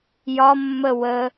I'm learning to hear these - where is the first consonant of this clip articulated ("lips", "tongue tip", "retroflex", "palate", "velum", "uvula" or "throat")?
palate